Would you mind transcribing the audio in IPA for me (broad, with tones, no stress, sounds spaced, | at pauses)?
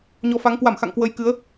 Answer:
ɲ ɔ˨˦ f a˨˦ ŋ k w a˧˩ m x a̰˧˨ ŋ k w ə˨˦ j k ɨ˨˦ ə̯